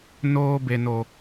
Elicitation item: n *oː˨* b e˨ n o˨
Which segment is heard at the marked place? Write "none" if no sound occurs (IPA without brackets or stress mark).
oː˦